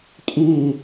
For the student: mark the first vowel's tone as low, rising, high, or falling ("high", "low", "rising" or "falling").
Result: falling